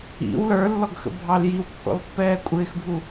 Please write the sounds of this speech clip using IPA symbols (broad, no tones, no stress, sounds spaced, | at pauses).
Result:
ḭ w l ə˞ lː ɔ ɡ x ə̰ bʱ ɑ l j i w kː ɔ̰ l pː ɛː kʷʼ ɪː x bʱ u